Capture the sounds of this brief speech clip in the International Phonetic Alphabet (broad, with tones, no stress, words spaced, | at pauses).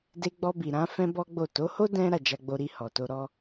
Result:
de˧ɡ͡bɔ˧bi˨ ɾã˨˦ fɛ̃˦bɔ˦ɡ͡bo˦˨ to˨˦ho˦ dɛ̃˦ ɾa˦˨d͡ʒa˧ɡ͡bo˧ ɾi˧hɔ˨to˧ ɾɔ˦